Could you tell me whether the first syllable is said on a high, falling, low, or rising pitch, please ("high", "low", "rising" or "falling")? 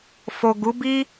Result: low